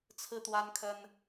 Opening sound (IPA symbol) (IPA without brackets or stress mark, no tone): t͡sʰ